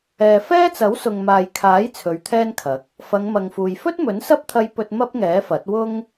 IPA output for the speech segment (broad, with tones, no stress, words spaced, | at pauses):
ɛː˨fɛː˥t͡sɐ˨˥w sʊ˨ŋmaː˨jkʰaː˨˥j t͡sʰɵ˨˧ɥt̪ʰɛː˥nkʰɐ˨˥k̚ | fɐ˨˧ŋmɐ˨ŋfuː˨j fɵ˥t̚mɵ˨˥nsɐ˥p̚t̪ʰɐ˧j pɵ˧t̚ mɐ˥p̚ŋɛː˨˥fɐ˨˥t̚wʊ˥ŋ